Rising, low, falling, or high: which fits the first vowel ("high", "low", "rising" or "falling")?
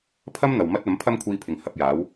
high